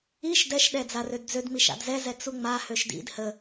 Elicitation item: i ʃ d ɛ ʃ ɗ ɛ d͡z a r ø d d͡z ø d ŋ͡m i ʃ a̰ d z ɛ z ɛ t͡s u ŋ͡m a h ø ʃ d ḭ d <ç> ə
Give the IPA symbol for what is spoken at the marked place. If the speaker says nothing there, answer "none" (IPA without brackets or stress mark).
h